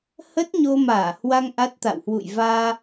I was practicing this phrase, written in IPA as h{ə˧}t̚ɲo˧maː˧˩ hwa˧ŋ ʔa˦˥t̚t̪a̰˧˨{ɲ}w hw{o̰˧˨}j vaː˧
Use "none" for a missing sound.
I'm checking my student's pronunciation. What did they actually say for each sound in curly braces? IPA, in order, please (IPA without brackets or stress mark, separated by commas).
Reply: ə˦˥, none, ṵ˧˨